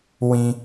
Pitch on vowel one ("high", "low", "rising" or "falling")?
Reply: low